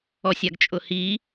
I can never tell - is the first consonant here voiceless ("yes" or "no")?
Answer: yes